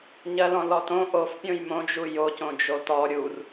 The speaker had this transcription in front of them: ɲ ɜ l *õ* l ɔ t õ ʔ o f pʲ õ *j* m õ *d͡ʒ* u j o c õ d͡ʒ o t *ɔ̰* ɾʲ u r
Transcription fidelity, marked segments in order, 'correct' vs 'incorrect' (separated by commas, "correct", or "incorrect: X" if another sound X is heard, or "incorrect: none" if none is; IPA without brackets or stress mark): incorrect: ɔ̃, correct, correct, incorrect: ɔ